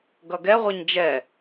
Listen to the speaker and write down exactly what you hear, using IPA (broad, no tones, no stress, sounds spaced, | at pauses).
ɡ ʌ ɡ ɛ ʁʷ ɛ ɲ d͡ʒ ɛ